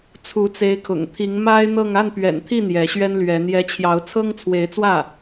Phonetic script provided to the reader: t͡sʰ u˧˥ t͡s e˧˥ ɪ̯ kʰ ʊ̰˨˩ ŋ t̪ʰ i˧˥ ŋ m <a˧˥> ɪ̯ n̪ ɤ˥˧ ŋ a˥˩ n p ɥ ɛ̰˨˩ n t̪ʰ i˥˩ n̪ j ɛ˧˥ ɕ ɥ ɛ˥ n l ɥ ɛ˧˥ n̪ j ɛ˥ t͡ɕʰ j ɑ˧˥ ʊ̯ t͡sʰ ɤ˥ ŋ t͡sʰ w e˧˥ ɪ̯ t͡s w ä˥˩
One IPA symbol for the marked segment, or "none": a˥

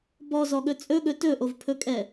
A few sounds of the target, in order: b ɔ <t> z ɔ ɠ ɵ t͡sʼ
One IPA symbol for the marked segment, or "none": none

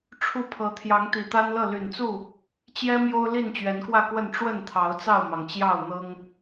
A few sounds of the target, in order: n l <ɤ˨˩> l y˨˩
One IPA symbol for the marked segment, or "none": ɤ˥˨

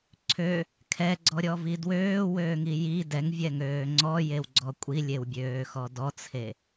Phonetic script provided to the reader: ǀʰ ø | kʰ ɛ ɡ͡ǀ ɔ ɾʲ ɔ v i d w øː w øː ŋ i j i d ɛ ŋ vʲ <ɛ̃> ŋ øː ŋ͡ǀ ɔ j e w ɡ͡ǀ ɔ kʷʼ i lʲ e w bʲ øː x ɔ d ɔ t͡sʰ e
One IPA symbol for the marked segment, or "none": ɛ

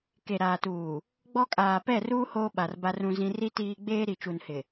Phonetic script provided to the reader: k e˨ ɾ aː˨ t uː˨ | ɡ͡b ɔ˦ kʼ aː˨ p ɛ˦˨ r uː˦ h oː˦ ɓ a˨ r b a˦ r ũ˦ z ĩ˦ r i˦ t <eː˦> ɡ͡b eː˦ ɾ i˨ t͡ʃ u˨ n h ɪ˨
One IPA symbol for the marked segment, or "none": iː˦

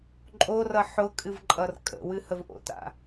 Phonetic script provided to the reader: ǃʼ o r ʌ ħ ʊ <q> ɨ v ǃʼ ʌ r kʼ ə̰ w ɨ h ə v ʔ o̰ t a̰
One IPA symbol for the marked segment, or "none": kʼ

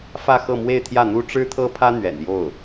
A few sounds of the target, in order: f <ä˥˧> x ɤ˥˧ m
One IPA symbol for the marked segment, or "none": ä˥˧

